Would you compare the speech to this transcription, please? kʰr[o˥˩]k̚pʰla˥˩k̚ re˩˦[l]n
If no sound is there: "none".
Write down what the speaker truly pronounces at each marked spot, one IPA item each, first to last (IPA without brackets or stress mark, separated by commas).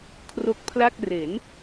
o˦˥, none